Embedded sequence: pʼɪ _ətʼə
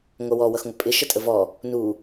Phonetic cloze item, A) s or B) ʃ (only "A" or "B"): B